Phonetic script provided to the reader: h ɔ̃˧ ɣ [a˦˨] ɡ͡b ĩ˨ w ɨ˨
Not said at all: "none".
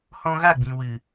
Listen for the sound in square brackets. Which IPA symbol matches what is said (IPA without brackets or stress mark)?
a˦˨